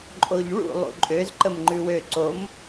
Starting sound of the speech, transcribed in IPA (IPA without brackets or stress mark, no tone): ǃʼ